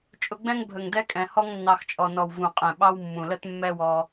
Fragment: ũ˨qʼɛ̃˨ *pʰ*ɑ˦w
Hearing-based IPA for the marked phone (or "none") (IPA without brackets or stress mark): ɓ